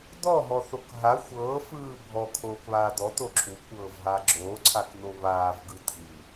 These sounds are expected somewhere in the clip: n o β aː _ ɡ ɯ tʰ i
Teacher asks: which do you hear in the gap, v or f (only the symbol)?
v